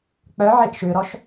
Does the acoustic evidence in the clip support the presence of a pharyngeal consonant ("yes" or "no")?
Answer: yes